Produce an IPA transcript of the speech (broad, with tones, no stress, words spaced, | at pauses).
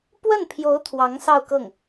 pwə˥˩npʰjo˧˥ʊ̯ t̪ʰwɑ˧˥ŋsɑ˥˧ʊ̯kɤ˥˩ŋ